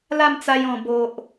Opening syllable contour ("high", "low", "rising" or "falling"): falling